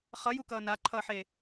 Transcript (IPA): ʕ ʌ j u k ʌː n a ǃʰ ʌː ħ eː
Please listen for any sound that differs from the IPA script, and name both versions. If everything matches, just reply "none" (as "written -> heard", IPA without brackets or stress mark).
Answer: ʕ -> χ